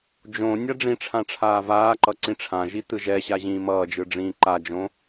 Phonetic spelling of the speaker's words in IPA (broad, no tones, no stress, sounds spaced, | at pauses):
d͡ʒ õ nʲ a ɖ͡ʐ ĩ ʈ͡ʂʰ ã ʈ͡ʂʰ aː v aː ǃ ʌ ǀ ĩ ʈ͡ʂʰ ã ʒ i t ɯ ʒ ɛ ɕ a ʑ ĩː m ʌː d͡ʒ ɯ ɖ͡ʐ ĩː ǃ a d͡ʒ õ